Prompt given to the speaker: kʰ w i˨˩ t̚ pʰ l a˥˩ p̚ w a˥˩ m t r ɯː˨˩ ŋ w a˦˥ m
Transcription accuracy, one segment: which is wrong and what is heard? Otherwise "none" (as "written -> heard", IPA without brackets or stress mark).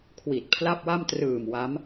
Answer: ŋ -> m